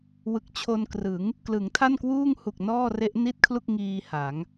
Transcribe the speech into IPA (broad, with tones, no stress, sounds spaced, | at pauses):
w ɯ˨˩ k̚ t͡ɕʰ o˧ n k r ɯ˩˦ ŋ | k l ɯ˩˦ ŋ tʰ a˥˩ n k w uː˥˩ ŋ h u˨˩ k̚ n ɔː˥˩ r e˦˥ ʔ n i˥˩ t̚ kʰ l u˥˩ k̚ ŋ iː˧ h a˩˦ ŋ